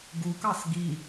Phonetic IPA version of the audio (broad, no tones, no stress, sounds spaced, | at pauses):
ɡ u k ɑ s ɡ i